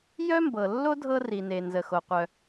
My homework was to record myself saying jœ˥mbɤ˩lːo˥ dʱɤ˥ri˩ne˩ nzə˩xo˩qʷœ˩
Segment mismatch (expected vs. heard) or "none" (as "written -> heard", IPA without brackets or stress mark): none